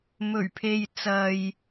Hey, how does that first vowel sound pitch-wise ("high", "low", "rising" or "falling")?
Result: low